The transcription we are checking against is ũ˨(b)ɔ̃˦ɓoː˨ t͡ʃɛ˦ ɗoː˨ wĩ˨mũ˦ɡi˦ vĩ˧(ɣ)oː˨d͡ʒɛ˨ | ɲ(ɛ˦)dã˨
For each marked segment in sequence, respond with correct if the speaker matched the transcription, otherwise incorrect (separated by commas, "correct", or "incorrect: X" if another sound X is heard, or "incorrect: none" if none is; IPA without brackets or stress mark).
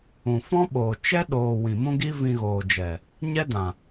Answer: incorrect: f, correct, correct